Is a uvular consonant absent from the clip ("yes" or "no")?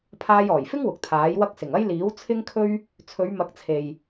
yes